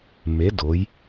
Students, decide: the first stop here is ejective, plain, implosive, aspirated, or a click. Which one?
plain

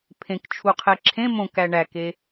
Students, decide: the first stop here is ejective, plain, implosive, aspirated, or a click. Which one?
aspirated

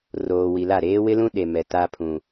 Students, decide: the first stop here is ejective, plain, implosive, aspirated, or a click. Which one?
implosive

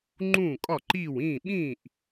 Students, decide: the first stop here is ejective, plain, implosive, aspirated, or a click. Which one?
click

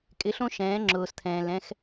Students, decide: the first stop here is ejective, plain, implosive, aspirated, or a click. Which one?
ejective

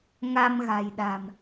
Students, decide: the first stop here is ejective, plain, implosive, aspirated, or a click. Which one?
implosive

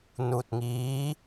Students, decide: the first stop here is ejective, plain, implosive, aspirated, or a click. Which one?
plain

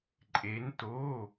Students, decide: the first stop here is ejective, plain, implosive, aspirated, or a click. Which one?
click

